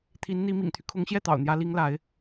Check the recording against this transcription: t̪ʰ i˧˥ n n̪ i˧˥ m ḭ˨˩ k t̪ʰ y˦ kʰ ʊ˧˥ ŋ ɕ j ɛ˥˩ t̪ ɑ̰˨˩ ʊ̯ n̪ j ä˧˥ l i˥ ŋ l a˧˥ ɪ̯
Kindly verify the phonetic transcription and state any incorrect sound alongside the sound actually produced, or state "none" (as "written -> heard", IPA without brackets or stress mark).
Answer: k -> ŋ